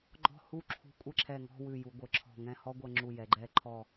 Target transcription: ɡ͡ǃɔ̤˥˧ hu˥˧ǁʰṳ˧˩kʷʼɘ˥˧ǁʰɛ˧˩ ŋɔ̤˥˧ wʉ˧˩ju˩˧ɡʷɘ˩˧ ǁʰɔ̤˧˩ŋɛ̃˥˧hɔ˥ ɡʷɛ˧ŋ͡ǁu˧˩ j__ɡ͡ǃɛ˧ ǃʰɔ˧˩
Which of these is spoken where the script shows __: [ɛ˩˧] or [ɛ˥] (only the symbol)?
ɛ˩˧